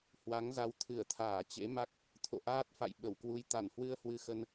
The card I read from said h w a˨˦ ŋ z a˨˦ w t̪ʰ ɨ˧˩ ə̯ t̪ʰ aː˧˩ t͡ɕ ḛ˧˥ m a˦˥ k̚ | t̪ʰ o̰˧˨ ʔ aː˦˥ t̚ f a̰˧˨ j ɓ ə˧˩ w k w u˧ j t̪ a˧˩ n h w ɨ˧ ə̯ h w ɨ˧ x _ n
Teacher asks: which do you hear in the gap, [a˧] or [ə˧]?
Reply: ə˧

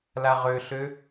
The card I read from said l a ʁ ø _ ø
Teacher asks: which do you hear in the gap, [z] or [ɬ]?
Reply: ɬ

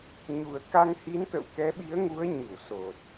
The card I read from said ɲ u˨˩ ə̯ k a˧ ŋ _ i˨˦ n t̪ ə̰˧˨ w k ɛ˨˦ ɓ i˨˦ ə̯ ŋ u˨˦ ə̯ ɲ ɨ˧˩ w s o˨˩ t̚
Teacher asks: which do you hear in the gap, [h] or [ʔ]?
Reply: h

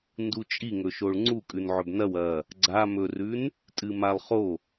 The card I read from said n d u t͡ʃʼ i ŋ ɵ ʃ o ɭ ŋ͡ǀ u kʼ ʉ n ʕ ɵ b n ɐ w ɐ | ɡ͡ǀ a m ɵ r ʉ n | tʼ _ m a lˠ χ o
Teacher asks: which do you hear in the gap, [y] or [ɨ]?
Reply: ɨ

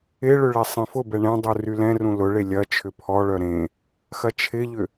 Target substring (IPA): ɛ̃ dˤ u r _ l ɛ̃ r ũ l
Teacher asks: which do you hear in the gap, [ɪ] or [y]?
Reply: y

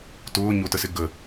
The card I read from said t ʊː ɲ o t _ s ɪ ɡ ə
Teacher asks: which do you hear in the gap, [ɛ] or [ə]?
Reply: ə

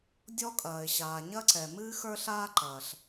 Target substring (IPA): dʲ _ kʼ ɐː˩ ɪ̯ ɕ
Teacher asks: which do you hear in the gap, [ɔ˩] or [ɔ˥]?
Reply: ɔ˥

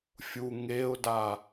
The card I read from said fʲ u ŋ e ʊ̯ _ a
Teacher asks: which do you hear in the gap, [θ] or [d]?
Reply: d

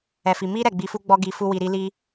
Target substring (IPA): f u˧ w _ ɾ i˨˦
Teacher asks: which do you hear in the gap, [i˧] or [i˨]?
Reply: i˨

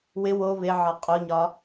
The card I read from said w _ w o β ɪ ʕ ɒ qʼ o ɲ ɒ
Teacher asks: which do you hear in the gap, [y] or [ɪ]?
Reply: ɪ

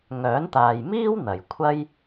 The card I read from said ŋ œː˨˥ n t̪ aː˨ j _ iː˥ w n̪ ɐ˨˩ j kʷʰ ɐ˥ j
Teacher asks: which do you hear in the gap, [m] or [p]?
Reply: m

